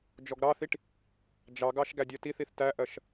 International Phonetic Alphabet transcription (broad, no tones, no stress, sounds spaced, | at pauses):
d͡ʒ ɔ ɡ ɾ ɑ θ i ʈ | d͡ʒ ɑ ɡ ɑ ʃ ɡ æ dʲ ɜ t i θ i θ t æ ʔ ɜ ʃ